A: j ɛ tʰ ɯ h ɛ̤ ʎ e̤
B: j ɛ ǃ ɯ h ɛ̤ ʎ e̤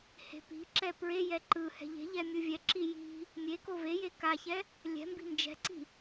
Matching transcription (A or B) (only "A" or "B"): B